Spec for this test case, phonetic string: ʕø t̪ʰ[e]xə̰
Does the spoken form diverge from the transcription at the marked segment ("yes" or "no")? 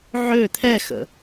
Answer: yes